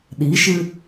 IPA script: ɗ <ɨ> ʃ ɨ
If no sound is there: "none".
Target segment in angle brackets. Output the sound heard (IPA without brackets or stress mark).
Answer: i